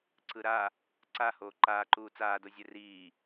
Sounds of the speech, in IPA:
ǀ ɯ ɾ a | ǀ a h oː ǃ aː ǃ uː t͡s aː d o zʲ ɛ r iː

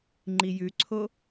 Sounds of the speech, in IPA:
ŋ͡ǃ i j ʉ ǀʰ o

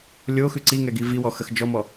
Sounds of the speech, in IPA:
lʲ o x ʉ ǀ i ŋ ɛ ɡ i v i w ɔ x ə x d͡ʒ ɔ m ɔ

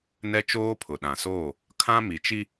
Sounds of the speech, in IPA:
n ɛ˦ t͡ʃ oː˦ pʰ ʊ˨ ɗ ã˨ s oː˦˨ | kʰ ã˦ m i˨ t͡ʃ i˦

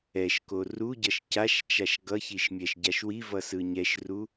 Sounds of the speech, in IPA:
ɛ ʃ k o r u ɟ ʌ ʃ c a ʃ t͡ʃ a ʃ ɡ ʌ ç i ʃ mʲ ɛ ʃ ɟ a ʃ w i v ʌ s ɯ ɲ ɛ ʃ r u

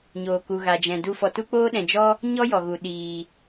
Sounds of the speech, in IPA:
ɲ oː˨ k u˨ ɣ a˨ d͡ʒ ɛ̃˨ d u˦ f ɔ˧ t u˦ k͡p oː˦ ɗ ɛ̃˨ d͡ʒ ɔ˦ | ɲ ɔ˦ j ɔ˨ ɣ u˨ ɗ iː˨

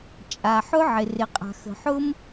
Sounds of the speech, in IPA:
t͡ʃʼ a˩ ħ ʊ˥ ʕ ɪ˩ r ɪ˩ qʼ a̤˩ x ə̤˩ ħ ʊ˥ m

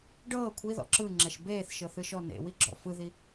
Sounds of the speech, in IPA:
ɖ ɤː kʷʰ i ð ɔ̰ ǁ ɯ ŋ͡ǁ ɛ ʃ b eː θ ʃ ɤ θ ɯ ʃ ɔ n ḛ w i ɡ͡ǁ ɔ̰ f ɯ ð i

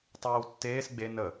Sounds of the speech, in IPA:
tˤ eː w tː eː s ɡ͡b e n ə

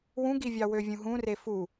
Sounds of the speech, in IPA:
w ũ ɡ i vʲ ɑ w ø vʲ ũ ɦ ũ r e f u

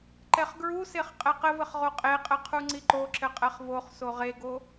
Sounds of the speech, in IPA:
ǃ ɛ χ ɡ ɹ u s e χ qʼ ɛ q ɘ v ɘ χ ʁ o qʼ e qʼ ɘ qʰ u ŋ͡ǀ i ǃ o ǁ ɘ qʼ ɛ χ v o χ s o ʁ e ɡ o

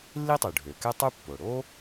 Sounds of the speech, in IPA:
lː i˥ tˤ y˩ ɖʱ ø˩ k ɛ˥ tˤ u˥ pː o˩ ɽ o˥

